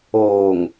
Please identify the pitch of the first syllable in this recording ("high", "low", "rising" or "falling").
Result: low